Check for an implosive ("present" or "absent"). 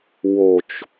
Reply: absent